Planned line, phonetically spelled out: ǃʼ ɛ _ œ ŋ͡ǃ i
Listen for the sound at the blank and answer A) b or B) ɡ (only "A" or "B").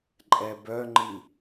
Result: A